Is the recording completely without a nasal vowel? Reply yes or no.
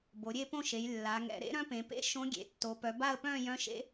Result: no